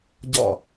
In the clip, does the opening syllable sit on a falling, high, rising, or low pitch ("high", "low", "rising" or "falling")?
falling